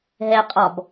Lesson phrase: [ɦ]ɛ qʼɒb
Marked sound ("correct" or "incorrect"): correct